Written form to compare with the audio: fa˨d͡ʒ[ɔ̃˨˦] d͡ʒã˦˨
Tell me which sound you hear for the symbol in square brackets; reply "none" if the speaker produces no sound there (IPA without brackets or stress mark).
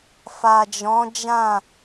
ɔ̃˨˦